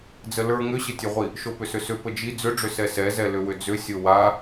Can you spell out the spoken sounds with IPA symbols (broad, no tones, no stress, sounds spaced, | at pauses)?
d͡z ə l ə˞ ŋ ʏ ɕ ə tʲ ɵ ʁʷ i | ʃ o p ʏ s ʏ s ʏ p ə d͡ʒ i d͡z ʏ ɖ͡ʐ ʏ s ɛ s ɛ z ɛ l ʏ w ʏ d͡z ʏ sʲ o w a